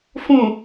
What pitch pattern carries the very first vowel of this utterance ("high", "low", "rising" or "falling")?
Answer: low